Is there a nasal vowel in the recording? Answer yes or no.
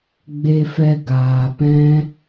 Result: yes